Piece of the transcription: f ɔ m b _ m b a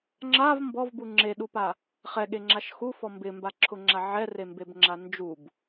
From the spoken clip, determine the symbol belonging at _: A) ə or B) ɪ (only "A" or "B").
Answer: B